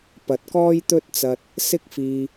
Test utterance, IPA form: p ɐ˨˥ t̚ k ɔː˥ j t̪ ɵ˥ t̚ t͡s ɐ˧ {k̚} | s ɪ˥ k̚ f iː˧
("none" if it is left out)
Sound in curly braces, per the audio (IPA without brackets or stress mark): t̚